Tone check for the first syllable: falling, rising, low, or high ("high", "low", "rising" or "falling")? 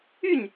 falling